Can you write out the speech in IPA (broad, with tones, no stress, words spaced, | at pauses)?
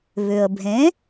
βʏ˩ə̯bʱẽ˩˥